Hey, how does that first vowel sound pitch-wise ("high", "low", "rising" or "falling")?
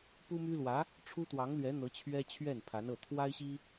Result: high